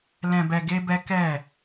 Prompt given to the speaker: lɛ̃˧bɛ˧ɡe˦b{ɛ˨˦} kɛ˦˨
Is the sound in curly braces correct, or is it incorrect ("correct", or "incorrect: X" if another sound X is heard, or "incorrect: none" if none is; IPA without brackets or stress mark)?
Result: incorrect: ɛ˦